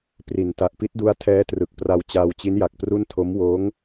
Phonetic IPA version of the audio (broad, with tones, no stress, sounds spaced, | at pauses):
p r i˨˩ n t a˨˩ ʔ p i˦˥ t̚ d u˦˥ a̯ tʰ ɛː˦˥ t r ɯ˨˩ k̚ p r a˧ w t͡ɕ aː˧ w t͡ɕ i˦˥ n j a˨˩ k̚ p r u˥˩ n tʰ o˦˥ m w oː˦˥ ŋ